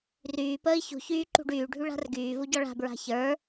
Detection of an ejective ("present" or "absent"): absent